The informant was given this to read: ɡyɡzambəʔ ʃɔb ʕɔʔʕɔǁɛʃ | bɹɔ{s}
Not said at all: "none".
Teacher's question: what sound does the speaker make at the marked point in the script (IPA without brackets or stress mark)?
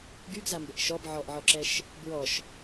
ʃ